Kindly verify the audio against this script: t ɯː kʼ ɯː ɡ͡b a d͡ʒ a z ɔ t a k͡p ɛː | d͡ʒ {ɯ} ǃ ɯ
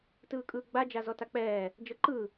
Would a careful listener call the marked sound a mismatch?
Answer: yes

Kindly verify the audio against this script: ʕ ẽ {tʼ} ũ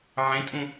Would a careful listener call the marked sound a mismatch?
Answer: no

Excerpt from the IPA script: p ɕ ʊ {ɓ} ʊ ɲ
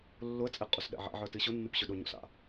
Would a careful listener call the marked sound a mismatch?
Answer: yes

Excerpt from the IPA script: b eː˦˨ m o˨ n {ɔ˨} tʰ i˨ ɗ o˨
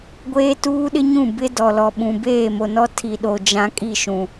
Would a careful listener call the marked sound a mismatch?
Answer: yes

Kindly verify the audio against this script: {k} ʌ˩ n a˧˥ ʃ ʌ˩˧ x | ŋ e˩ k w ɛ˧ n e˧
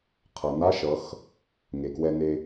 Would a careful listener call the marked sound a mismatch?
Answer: yes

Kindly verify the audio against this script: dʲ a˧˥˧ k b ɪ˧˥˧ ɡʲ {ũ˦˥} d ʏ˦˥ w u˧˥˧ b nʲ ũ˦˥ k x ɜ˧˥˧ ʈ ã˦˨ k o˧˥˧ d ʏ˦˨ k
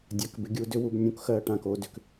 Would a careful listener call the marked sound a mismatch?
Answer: yes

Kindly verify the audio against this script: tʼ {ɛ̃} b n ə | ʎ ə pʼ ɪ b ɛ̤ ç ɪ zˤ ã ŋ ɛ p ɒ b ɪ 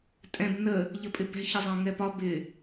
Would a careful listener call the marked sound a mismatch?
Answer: no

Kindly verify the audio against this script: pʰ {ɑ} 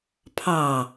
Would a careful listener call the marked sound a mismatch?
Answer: no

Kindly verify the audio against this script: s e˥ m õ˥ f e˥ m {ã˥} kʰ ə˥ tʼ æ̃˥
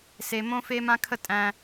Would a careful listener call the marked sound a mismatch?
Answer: no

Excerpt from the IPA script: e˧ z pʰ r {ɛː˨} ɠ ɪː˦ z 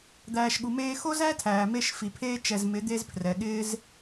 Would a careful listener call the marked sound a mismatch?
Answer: yes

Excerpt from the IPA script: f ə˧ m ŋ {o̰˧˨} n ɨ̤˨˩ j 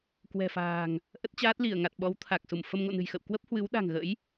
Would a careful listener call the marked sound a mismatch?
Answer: no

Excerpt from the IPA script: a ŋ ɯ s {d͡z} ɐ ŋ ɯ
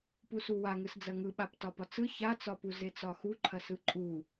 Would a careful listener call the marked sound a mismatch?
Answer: no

